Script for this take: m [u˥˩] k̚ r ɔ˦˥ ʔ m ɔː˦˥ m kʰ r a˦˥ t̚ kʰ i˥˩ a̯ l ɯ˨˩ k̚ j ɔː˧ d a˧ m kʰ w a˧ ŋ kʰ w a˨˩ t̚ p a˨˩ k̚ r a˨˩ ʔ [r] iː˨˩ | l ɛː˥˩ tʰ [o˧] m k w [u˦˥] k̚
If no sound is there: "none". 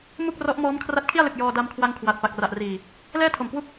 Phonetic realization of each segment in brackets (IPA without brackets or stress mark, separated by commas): u˥˩, r, o˨˩, u˥˩